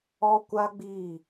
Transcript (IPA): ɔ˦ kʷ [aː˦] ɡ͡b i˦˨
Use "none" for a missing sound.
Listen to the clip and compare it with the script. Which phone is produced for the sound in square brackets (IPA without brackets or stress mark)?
a˦